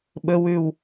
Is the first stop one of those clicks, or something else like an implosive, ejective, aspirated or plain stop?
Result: implosive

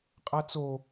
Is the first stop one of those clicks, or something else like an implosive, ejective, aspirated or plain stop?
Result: ejective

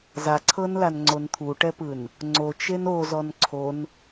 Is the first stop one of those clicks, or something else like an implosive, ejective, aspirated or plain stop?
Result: click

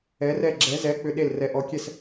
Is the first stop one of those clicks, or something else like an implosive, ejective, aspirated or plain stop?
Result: click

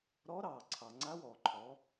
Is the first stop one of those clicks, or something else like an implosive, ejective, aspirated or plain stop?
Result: click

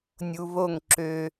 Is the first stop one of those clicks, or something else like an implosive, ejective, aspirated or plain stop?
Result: click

